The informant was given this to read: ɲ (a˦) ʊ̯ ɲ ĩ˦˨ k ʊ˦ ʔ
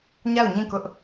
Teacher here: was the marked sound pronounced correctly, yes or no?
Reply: no